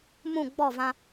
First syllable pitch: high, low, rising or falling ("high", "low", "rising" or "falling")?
falling